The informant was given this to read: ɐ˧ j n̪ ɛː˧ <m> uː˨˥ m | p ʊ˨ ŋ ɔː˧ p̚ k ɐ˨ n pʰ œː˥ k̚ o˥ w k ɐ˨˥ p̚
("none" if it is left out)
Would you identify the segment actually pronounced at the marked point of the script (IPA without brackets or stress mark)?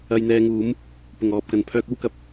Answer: ŋ